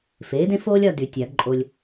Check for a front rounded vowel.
present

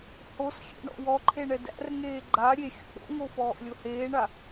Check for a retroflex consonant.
present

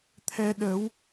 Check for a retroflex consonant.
absent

